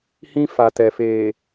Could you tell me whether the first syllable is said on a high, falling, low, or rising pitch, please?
high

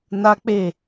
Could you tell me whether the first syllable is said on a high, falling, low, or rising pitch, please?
high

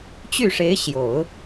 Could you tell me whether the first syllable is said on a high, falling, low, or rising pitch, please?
falling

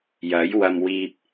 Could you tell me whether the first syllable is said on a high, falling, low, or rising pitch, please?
rising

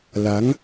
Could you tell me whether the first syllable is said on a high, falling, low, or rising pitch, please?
rising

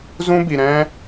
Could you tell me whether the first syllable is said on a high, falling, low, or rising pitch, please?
high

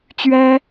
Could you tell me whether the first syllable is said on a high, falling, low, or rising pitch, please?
high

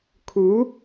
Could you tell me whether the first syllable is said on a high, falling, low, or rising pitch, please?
rising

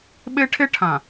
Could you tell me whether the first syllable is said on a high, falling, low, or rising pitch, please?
high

